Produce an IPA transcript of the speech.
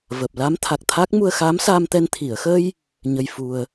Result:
vəː˨˩p̚ la˧˥mt̪ʰa˨˩k̚t̪ʰa˦˥k̚ mu˧ə̯xaː˧˥msaː˧mt̪ɛ˧n t̪ʰi˨˩˨ə̯xə˧j | ɲə˧jfu˧ə̯

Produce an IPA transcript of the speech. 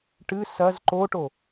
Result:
ʈɨ sɐz ǃoʈo

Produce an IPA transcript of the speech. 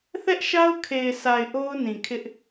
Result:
θɛ˦ʔʃa˦ʊ̯kʰe˨ɪ̯sa˨ɪ̯ ʔo˦ʊ̯nĩ˨kʰɪ˦ʔ

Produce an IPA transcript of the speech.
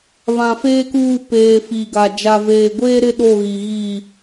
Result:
βã˨ feː˦kuː˦˨ peː˨ fi˨ɡa˨ d͡ʒa˨veː˨ ɡʷeː˦ ɾɪ˦ɗo˦˨ɣi˨ɣi˦˨

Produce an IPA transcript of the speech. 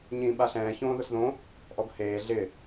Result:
ɲĩːɓaɬɛ̃ː çõːðʊsðõ | ʔɔɡheː ɮɪ

